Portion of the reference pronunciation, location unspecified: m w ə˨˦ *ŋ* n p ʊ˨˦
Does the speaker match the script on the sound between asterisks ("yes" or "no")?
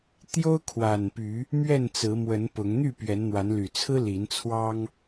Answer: no